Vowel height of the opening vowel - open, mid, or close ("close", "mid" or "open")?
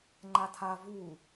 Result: open